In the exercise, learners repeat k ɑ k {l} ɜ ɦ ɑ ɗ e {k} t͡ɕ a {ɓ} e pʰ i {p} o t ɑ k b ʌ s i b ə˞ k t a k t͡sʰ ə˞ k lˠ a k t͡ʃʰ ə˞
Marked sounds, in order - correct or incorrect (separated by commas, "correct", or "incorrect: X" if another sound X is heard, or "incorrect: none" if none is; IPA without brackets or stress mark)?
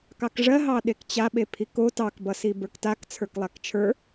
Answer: incorrect: ʐ, correct, correct, incorrect: k